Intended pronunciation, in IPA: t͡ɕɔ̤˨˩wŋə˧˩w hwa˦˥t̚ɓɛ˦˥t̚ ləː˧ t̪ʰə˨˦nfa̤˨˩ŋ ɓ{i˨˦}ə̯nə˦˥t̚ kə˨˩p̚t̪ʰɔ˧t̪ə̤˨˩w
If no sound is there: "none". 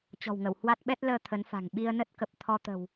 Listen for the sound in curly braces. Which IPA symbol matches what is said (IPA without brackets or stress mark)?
i˧